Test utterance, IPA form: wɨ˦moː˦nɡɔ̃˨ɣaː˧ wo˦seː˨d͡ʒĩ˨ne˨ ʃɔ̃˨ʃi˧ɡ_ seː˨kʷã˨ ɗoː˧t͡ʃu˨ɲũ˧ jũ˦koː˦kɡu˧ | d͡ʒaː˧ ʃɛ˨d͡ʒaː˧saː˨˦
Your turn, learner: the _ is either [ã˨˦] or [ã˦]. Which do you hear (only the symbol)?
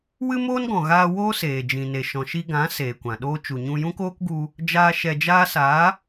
ã˨˦